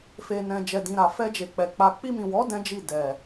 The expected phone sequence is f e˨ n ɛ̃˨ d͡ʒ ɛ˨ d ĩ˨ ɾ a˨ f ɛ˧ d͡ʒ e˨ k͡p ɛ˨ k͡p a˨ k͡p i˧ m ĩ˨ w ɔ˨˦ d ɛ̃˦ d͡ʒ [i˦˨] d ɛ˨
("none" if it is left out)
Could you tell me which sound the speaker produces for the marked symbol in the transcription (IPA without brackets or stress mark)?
i˦˨